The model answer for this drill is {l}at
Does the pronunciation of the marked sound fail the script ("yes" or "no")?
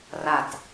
yes